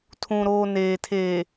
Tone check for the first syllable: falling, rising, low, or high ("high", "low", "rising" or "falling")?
low